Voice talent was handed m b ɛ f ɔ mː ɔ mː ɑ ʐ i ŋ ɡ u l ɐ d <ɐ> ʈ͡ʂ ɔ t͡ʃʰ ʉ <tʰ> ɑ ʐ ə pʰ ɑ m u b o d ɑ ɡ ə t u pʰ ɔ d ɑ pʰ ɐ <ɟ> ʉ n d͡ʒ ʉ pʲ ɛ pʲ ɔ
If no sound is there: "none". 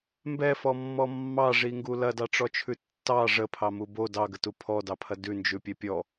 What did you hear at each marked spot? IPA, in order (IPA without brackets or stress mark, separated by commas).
ɑ, tː, d